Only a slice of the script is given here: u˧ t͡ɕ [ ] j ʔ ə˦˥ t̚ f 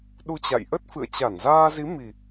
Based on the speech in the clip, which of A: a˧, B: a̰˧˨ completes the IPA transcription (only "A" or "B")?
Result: B